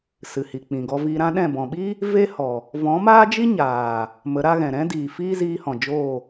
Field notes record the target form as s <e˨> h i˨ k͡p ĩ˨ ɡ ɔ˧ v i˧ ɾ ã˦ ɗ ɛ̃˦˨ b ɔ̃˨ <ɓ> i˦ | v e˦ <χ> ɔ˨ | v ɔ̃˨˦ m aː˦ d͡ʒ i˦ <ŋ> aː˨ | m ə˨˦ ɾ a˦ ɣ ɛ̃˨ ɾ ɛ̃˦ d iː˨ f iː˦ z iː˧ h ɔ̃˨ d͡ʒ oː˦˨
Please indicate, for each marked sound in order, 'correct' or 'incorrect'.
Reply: incorrect: ɨ˨, correct, incorrect: h, incorrect: ɲ

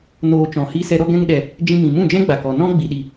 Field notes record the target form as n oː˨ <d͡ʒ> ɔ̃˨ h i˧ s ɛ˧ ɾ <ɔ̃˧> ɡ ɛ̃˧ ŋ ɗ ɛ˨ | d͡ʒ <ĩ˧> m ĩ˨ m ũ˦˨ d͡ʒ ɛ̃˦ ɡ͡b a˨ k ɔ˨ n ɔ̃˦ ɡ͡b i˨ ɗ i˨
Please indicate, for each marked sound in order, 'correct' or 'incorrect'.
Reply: incorrect: t͡ʃ, incorrect: ɔ˧, correct

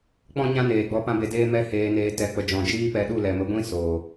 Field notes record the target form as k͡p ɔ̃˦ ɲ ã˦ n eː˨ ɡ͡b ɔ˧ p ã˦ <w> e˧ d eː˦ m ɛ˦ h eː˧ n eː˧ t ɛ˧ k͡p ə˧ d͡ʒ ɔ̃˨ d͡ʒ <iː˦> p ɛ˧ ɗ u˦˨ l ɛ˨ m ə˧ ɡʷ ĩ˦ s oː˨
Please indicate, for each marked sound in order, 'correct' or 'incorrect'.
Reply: incorrect: b, correct

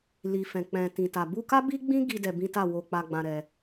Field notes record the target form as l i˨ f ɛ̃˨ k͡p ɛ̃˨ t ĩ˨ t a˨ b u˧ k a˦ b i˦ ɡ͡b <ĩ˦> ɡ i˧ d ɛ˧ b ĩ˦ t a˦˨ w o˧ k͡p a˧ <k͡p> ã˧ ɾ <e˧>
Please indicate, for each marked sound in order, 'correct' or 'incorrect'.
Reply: correct, incorrect: ɡ͡b, incorrect: ɛ˧

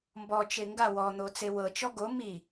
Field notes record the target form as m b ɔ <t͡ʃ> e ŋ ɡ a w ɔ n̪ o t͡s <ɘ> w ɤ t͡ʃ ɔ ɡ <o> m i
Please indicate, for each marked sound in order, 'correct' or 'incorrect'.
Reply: correct, incorrect: e, correct

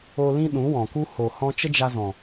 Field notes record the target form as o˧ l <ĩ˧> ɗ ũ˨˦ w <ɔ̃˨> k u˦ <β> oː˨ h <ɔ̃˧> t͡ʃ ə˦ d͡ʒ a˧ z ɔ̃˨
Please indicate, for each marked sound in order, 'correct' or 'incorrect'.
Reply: incorrect: ĩ˦, correct, incorrect: h, correct

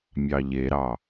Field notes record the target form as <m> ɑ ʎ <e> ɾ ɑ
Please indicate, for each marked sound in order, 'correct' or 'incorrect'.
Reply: incorrect: mʲ, correct

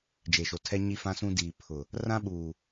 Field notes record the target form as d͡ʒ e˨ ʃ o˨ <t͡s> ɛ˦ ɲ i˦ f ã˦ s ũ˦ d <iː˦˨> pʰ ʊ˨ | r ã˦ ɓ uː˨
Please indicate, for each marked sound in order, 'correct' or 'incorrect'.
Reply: incorrect: tʰ, incorrect: iː˨

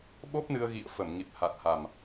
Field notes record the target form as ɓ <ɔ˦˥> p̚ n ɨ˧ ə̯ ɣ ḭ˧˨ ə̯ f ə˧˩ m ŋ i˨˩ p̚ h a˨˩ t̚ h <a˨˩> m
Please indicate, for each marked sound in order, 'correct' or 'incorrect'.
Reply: incorrect: o˦˥, correct

